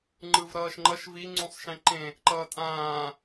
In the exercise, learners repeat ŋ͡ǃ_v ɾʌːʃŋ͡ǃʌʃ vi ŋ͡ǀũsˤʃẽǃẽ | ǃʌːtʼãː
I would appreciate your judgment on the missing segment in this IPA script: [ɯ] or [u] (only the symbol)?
ɯ